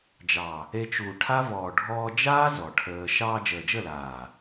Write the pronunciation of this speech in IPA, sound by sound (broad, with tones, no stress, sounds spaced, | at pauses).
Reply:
d͡ʒ ɑ˨ | e˧ t͡ʃ uː˨ ʈʰ a˦ v ɔː˨ ɖʱ ɔː˧ d͡ʒ aː˦ z ɔ˨ ʈʰ əː˧ ʃ ɑː˧ d͡ʒ əː˨ d͡ʒ ə˦˨ l aː˨